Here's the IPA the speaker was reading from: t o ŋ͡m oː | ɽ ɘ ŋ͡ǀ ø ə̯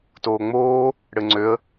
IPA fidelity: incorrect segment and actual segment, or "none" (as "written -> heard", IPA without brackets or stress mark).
o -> oː